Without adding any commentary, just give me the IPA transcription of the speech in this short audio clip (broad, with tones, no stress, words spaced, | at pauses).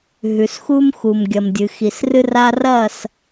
ɦʉ˨sxu˦m xu˨mɡʲɐ˨mdʲɨ˨ xi˨srɨ˦ra˦ rɐ˦˨s